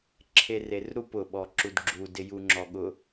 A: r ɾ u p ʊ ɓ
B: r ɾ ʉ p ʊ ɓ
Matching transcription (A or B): A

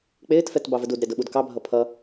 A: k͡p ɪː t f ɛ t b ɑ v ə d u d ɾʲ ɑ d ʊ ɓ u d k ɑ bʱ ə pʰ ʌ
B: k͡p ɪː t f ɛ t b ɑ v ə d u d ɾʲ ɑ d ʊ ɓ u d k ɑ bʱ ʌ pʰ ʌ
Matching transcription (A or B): B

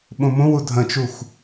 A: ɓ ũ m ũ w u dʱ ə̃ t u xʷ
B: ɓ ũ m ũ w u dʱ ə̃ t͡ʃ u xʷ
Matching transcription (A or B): B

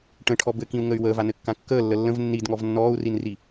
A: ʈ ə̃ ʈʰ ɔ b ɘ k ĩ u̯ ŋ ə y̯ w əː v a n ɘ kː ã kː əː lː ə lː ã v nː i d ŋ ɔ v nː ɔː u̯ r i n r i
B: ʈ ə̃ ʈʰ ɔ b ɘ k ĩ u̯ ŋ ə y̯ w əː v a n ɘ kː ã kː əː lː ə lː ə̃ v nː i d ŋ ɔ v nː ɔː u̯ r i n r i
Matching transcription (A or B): B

